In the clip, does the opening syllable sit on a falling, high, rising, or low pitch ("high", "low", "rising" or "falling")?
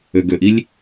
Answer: low